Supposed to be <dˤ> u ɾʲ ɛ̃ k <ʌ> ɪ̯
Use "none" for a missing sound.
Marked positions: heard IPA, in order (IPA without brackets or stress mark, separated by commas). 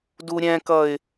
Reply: d, ʌ